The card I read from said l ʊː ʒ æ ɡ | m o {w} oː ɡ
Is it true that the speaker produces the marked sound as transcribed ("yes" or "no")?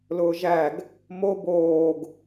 no